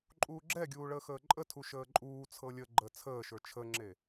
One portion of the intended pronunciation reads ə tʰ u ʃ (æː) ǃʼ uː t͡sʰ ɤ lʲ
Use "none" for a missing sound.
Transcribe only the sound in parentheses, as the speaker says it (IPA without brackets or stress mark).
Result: əː